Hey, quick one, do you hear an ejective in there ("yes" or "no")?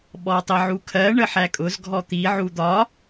yes